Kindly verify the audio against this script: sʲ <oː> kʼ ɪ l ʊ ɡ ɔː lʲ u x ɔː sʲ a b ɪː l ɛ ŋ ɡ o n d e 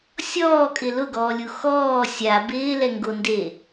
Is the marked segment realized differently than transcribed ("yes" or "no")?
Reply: yes